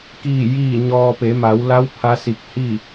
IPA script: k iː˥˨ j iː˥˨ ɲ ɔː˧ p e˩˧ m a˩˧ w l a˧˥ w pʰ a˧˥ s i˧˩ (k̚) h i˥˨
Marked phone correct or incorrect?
correct